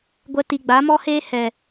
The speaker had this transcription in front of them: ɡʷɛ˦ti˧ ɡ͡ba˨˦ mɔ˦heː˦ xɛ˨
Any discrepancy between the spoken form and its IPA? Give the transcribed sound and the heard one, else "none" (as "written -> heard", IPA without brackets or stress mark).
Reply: x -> h